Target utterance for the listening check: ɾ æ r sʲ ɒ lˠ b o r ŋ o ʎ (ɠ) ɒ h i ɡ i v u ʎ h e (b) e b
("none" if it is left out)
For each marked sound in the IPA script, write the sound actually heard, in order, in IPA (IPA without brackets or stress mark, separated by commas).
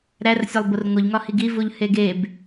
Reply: ŋ, ɡ